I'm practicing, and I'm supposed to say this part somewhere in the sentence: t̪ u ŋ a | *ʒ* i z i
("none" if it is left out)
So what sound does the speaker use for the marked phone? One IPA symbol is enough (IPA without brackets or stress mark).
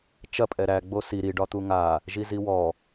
ʒ